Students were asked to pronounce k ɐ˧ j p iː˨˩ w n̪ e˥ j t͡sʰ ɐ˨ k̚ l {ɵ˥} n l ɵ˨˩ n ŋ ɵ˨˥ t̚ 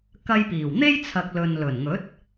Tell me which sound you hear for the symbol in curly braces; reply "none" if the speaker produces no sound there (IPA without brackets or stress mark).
ɵ˨